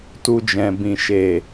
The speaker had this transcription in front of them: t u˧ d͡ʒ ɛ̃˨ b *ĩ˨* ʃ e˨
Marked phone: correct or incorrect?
correct